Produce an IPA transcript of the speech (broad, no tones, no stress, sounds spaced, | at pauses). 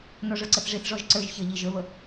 n ɔ ʐ ə˞ ǀ ə θ ʐ i θ ʐ ɔ ʒ ǀ ə˞ ʒ ç ə ʎ i ʒ ə˞ β ə